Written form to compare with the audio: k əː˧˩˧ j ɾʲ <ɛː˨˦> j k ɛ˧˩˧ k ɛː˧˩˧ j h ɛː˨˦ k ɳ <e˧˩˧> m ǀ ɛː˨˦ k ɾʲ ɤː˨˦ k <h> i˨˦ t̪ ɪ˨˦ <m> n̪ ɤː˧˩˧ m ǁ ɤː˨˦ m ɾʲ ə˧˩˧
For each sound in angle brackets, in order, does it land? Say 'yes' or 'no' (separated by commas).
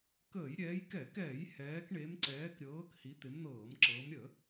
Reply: yes, no, yes, yes